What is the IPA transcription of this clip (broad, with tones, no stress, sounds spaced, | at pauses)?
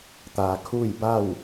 t̪ aː˩ kʰ uː˥˨ j b a˥˨ w